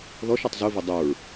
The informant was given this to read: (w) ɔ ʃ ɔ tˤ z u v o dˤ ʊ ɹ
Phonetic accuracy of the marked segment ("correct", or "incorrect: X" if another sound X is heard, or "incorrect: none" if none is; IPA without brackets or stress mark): incorrect: ð